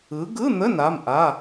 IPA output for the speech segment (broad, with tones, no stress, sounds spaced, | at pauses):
ɯ˨˦ ɡ ɯ˧˥˧ n̪ ə˧˥˧ n a˧˥˧ m ʔ a˧˥˧